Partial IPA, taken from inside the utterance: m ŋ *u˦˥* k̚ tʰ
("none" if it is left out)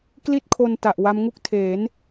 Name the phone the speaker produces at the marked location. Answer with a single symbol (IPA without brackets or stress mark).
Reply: u˥˩